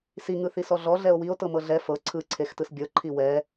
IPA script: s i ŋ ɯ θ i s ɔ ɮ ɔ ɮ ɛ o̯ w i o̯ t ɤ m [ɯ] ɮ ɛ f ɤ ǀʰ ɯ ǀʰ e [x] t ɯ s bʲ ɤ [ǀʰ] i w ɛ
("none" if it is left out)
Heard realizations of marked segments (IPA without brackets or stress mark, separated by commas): ɤ, x, ǃʰ